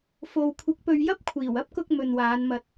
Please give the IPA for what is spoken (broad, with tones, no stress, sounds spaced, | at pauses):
f o˨ w kʷʰ ɪ˨˥ k̚ p ɵ˧ ɥ j ɐ˥ p̚ kʷʰ iː˨˩ w ɐ˥ p̚ k ʊ˧ k̚ m ɵ˨ n w aː˨˧ n m ɐ˧ t̚